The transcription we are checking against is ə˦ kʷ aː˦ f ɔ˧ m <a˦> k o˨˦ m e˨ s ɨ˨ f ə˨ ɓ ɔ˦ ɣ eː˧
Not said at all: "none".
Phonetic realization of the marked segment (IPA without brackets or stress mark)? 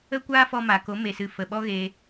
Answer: a˨